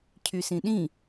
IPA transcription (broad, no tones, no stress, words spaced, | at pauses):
cʰysĩɗĩ